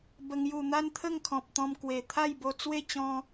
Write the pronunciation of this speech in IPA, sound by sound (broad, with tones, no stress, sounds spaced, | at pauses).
b ə˨˩ ŋ j u˨˩ n̪ a˦ n t̪ʰ ə˥˧ ŋ kʰ ɔ̃˨ p̚ t̪ ɔ̃˧ m k w e˨˩ t̪ʰ a˥˧ j b o˧ t͡s w e˥˧ t͡ɕ ɔ̃˧